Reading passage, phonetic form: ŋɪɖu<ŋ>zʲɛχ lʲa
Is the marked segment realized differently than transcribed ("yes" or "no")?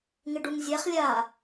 no